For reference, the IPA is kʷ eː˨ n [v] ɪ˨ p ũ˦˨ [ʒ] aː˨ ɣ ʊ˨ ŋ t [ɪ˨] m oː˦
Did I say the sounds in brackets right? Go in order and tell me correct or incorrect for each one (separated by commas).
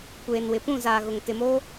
incorrect, incorrect, correct